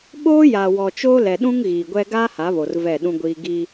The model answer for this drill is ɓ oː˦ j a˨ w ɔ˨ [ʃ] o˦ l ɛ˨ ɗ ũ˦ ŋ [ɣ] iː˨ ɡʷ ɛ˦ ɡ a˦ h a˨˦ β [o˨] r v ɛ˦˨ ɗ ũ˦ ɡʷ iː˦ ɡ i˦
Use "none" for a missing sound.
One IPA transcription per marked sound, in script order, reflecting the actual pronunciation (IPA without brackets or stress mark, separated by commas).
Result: t͡ʃ, ɣ, o˨